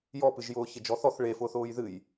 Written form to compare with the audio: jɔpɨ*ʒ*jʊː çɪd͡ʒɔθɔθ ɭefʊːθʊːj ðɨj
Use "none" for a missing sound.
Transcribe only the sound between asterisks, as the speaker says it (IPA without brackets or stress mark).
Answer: ʒ